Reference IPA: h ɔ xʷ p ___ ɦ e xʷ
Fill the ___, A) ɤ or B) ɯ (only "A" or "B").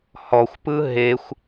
B